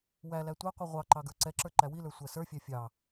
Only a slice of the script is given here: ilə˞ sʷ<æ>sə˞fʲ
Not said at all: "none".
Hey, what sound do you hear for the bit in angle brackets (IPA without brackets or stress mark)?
æ